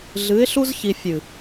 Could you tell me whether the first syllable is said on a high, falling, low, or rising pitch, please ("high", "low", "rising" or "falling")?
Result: rising